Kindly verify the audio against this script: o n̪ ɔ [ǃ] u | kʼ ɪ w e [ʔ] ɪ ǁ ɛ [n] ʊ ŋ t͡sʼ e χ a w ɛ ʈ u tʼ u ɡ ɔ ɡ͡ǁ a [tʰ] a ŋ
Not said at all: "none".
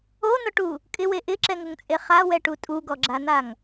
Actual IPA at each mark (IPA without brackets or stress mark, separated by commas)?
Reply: ʈ, ʔ, ŋ, n̪